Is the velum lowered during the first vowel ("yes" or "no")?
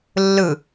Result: no